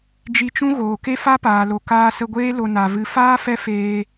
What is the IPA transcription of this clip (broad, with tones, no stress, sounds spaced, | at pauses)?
d͡ʒ i˧ t͡ʃ ũ˦ ɣ oː˨ k e˦ f a˦ p aː˨ l o˨ k aː˧ s ə˧ ɡʷ eː˦ l o˧ n a˨ v ɨ˧ f aː˦ f ɛ˦ f eː˧